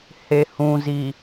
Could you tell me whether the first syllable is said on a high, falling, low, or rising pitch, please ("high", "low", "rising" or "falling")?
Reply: low